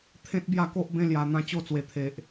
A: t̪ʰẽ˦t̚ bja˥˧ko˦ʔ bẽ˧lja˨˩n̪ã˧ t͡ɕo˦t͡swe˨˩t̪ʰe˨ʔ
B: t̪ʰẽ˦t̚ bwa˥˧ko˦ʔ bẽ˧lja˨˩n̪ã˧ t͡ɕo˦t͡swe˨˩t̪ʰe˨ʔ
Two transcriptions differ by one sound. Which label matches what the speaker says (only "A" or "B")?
A